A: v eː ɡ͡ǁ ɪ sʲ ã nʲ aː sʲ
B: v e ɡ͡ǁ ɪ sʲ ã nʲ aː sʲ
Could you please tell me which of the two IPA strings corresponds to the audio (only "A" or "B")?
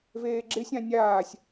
A